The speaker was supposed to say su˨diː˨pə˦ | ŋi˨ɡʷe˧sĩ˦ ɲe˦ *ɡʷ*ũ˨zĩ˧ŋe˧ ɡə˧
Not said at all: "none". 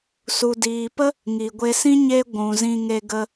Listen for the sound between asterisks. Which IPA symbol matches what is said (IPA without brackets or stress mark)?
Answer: ɡʷ